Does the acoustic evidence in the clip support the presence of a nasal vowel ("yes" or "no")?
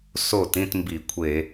yes